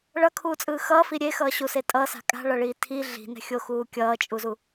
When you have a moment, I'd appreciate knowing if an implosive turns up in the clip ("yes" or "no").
no